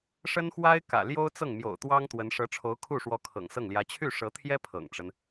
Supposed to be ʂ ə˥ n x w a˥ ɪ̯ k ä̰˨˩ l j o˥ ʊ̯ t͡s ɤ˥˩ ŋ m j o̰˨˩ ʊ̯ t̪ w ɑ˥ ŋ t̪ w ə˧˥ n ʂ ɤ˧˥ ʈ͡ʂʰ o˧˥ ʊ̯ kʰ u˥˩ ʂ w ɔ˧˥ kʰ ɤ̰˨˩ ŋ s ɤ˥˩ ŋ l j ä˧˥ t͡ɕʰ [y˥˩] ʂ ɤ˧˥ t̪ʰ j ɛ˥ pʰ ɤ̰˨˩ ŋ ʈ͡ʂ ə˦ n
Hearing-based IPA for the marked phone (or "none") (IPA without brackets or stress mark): y˥˩